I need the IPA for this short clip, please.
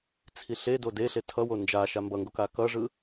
t͡sʰ i ɬ e d o d e ɬ e tʰ ʌ w o n d͡ʒ a ʃ a m b ʌ ŋ ɡ o k a k ʌ ʐ ɯ

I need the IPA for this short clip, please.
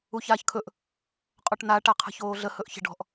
u ç aː ç kʰ ɵ ʔ | qʼ ɔ ʈ n a ʈ a qʰ ə̤ ç oː ɮ ə h ɵ ʔ ç ə̤ ɖ ɔ̤ ʔ

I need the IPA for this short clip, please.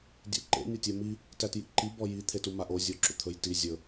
dʲ ḛ ǃ ḛ nʲ a tʲ e m i | t æ t j ḭ ǃ i b ɔ j i t̪ʰ e t u m a ʔ o zʲ o ǁ u t̪ʰ ɵ j t i zʲ ɵ

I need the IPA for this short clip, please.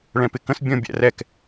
ɭ ɛ̃ p ɪ k ə̃ s bʲ ɔ̃ bʲ æ̰ r ɛ k

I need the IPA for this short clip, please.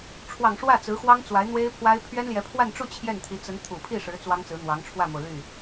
ʈ͡ʂʰ w ɑ˨˩ ŋ ʂ w ä˥˩ t͡s ɹ̩˧˥ x w ɑ˥ ŋ t͡s w a˧˥ ɪ̯ n̪ w e˥ ɪ̯ pʰ w a˥ ɪ̯ pʰ ɥ ɛ˥ n l j ɛ˧˥ pʰ w a˥˧ n ʈ͡ʂ u˥˧ t͡ɕʰ j ɛ˥˩ n t̪ʰ i˧˥ t͡s ə˧˥ n t̪ʰ u˨˩ pʰ i˥˩ ʂ ɻ̩˧˥ t͡s w ɑ˥ ŋ t͡s ɹ̩˧˥ n̪ w ɑ˧˥ ŋ ʈ͡ʂʰ w ä˥˩ m o˩ ʊ̯ l y˥˩

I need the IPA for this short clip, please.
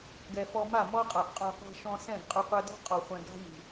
ɡ ɛ˧ f ɔ˧ m a˦˨ m ɔ˦ qʼ a˨ ʔ qʼ ɔ̃˨ qʷ a̤˧ ʃ ɔ̃˧ s ɛ̃˦˨ ɡ qʼ ʏ˧ qʷ ɛ˧ d ɔ̤˦ qʼ ɔ˨ χʷ ɛ̃˨ ɡ a̤˦ ʎ i̤˨

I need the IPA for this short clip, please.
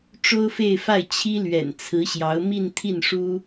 ʈ͡ʂ o˥ ʊ̯ f e˥˧ ɪ̯ f a˥˩ ɪ̯ t͡ɕʰ i˥ l ɥ ɛ̰˨˩ n t͡sʰ ɹ̩˧˥ ɕ j ɑ˧˥ ʊ̯ m i˥˧ n t̪ʰ i˥˩ n ʂ u˥

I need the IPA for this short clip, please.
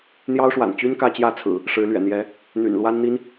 n̪ j ɑ˥ ʊ̯ ʂ w a̰˨˩ n t͡ɕ y˥ n k ä˥ t͡ɕ j ä˥˩ t͡sʰ ɹ̩˨˩˦ | ʂ ɻ̩˧˥ l ɥ ɛ̰˨˩ n̪ j ɛ˧˥ | n̪ y̰˨˩ n l w a˥ n n̪ i˥ n

